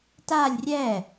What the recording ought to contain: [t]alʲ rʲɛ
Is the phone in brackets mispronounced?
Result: no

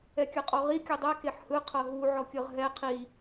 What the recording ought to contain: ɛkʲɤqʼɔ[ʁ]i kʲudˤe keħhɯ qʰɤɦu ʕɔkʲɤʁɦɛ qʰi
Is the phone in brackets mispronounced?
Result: no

